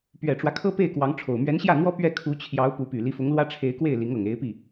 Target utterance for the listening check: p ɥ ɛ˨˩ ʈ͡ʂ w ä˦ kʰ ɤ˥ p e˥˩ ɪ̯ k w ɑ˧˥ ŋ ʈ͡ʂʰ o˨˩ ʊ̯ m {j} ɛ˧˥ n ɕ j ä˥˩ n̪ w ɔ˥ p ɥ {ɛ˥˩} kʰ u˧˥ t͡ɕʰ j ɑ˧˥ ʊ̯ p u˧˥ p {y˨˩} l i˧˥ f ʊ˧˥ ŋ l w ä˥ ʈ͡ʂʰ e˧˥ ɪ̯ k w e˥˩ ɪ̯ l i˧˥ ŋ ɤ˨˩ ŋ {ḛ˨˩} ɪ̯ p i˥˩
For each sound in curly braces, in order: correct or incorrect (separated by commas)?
incorrect, correct, correct, incorrect